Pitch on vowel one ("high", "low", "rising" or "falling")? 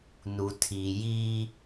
low